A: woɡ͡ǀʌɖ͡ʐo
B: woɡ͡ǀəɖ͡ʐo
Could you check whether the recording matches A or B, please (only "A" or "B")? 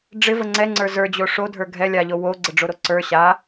B